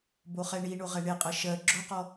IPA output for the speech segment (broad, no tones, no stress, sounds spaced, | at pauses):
b o χ ɛ ɳ i ɳ o ʁ ɛ ɳ e qʼ ɜ ʃ ɜ ɡ͡ǁ o q ɔ